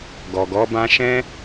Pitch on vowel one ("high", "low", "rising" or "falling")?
low